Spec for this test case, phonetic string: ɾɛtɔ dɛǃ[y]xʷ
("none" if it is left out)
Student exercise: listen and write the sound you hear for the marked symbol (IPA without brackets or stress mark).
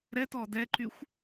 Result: y